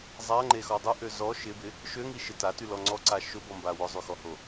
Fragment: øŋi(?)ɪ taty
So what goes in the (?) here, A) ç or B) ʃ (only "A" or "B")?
B